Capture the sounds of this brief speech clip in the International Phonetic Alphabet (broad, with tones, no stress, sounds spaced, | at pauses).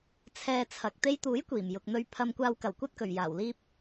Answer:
t͡sʰ ɛː˧ t͡sʰ ɐ˨ k̚ t̪ e˧ j t̪ uː˨˥ j kʷ iː˨˩ m j ʊ˨ k̚ n̪ ɵ˧ ɥ pʰ ɐ˧ m kʷ aː˧ w k ɐ˨˩ w kʷ ɐ˥ t̚ k ɵ˨˩ ɥ j aː˨˩ w l iː˥ p̚